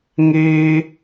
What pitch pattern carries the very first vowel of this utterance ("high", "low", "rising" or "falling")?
high